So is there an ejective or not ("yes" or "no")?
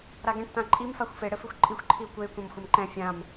yes